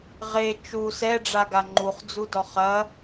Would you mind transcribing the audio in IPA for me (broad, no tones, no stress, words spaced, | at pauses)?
ʁe t͡ʃu sɛɖ͡ʐaɡa ŋ͡ǃuχd͡zudɔ χɐ